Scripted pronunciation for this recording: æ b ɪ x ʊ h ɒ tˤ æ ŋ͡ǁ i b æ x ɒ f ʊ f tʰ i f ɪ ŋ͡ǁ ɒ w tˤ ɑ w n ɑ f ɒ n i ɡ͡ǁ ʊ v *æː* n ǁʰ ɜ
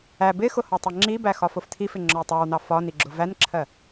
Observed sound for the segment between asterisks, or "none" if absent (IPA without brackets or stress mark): æ